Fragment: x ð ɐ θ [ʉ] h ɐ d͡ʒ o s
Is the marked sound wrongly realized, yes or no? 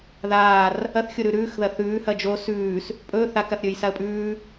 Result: yes